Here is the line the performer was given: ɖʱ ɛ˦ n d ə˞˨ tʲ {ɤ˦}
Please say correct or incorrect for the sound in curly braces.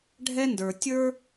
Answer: incorrect